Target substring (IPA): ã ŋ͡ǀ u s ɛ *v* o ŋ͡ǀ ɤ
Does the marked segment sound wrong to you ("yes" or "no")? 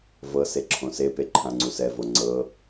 no